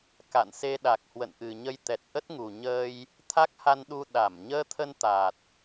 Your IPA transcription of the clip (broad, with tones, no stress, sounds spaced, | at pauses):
k a̰˧˨ n s e˧ ɗ a˨˩ k̚ h w ə̰˧˨ n ʔ ɨ˨˩ ɲ ə˧ j t̪ ɛ˨˩ t̚ ʔ ə˦˥ t̚ ŋ u˨˩ ɲ əː˧ j | t̪ʰ a˦˥ k̚ h a˧ n ɗ u˧ ɗ a˧˩ m ɲ əː˧ t̪ʰ ə˧ n t̪ a˨˩ t̚